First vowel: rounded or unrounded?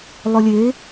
rounded